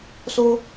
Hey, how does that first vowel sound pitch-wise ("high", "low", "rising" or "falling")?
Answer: high